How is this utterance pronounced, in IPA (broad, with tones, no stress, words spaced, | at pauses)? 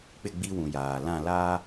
k͡pɪ˦˨ɡ͡bi˦wũ˨ jaː˨ lã˦˨laː˦